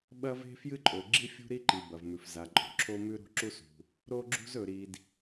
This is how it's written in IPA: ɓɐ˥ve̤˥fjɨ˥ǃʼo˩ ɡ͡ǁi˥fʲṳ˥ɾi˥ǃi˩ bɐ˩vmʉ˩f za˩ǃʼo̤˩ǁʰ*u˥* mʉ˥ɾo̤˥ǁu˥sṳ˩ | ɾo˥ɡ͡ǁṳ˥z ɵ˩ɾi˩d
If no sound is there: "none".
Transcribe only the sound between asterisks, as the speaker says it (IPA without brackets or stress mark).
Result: o˥